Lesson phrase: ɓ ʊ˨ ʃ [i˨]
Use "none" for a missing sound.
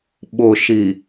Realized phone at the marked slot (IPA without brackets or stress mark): i˨